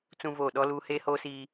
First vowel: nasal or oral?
nasal